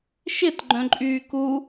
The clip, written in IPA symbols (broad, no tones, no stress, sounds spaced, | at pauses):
ʃ ɪ t ɡ͡ǃ œ̃ ǃʼ yː k u